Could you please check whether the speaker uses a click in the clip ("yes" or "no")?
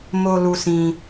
no